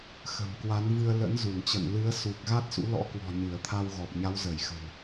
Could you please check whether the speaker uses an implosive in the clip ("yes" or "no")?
no